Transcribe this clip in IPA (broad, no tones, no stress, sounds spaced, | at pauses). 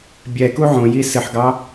bʲ ɛ k u ʕ õ j i s ɨ ħ ɡ ɑ